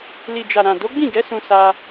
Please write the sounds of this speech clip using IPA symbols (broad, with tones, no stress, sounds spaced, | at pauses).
l i˨ d͡ʒ a˨ ɾ ã˨ d o˨˦ ɡ͡b ĩ˦˨ ɡ ɛ˨˦ s ũ˧ s a˧